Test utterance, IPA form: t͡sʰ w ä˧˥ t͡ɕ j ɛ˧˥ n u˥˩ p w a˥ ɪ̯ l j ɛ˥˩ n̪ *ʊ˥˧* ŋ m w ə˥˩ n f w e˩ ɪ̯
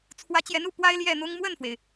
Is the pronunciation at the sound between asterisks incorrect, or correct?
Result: incorrect